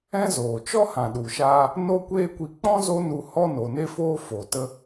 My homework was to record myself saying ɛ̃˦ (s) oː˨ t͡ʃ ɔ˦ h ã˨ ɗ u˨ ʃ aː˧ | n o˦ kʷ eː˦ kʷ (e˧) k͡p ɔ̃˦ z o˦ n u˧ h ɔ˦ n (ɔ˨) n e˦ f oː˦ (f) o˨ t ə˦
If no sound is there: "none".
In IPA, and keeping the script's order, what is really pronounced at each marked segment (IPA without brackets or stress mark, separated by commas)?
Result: z, i˧, o˨, f